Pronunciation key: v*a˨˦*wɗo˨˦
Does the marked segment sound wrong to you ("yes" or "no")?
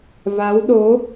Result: no